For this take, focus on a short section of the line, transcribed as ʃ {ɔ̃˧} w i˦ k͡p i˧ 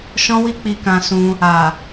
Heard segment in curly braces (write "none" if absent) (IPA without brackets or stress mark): ɔ̃˦